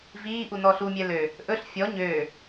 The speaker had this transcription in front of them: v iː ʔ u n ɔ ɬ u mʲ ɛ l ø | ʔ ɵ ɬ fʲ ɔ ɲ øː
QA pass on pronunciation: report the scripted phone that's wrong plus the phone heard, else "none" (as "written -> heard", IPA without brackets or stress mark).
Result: none